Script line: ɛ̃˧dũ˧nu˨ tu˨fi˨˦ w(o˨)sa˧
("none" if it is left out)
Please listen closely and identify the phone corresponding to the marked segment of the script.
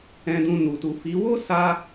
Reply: o˦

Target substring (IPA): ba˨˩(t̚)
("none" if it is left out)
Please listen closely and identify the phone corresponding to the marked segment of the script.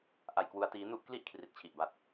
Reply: t̚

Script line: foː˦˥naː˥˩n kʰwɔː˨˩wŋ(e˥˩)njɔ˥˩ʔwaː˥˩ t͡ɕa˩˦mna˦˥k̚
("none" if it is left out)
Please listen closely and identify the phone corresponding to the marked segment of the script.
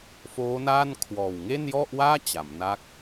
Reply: e˥˩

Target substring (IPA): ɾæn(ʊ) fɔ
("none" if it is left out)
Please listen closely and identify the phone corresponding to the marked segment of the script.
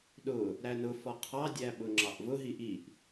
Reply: ʊ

